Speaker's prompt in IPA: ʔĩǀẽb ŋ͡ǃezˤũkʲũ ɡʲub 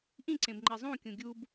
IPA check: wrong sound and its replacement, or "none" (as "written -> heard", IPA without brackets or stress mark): none